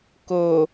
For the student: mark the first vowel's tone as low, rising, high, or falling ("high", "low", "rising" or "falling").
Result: low